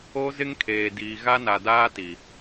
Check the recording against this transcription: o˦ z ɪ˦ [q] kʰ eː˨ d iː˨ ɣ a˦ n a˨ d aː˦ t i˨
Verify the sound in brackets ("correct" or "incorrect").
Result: incorrect